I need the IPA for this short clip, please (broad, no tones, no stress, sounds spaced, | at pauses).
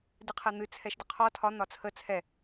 d ɨ qʰ ɛ n̪ ɨ t͡sʰ ɛ ʃ d ə qʰ ɔ tʰ ɒ n̪ ɒ t͡sʰ ə t͡sʰ ɛ